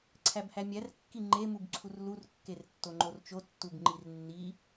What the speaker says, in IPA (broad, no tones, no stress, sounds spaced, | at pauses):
ǀʰ æ b h æ mʲ æ r kː i ŋ͡ǃ e m u b ǀʰ u r l u r kː e r tː o ŋ͡ǃ o r t͡ʃ o tː u b ŋ͡ǃ i r nː i